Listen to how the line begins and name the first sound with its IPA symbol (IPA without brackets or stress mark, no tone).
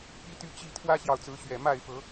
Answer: p